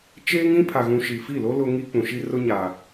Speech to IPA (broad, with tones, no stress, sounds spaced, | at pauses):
t͡ʃ eː˦ ŋ ĩ˦ pʰ a˨ ɣ ũ˨ ʃ i˨ f i˦˨ l o˦ l ʊ˦ ŋ i˦ k͡p ũ˨ ʃ i˦ r ʊ˦ ɲ a˨